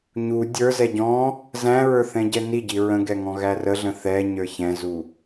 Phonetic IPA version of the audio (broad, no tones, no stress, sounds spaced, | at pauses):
ɲ u dʲ ə˞ z ɛ ɟ ɔ̃ | z æ̃ ɹ ə˞ θ ɛ̃ ɟ ɛ n i ɟ i ɹ ə̃ ɡ ɛ ŋ ɔ̃ ɣ æ r ə ɮ ə̃ θ ɛ ɲ ə˞ ç ɛ̃ z u